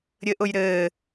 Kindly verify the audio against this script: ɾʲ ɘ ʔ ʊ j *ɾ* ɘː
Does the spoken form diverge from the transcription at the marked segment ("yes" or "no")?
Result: no